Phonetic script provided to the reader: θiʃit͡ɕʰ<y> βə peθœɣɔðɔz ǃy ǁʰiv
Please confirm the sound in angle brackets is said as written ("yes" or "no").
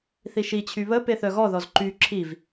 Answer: yes